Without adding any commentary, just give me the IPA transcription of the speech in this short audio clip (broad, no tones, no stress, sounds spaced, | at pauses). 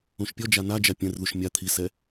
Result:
ũ ʃ pʲ ɔ d͡ʒ a n a d͡ʒ a pʲ ɛ̃ r ð u ʃ mʲ a t̪ʰ i s ɛ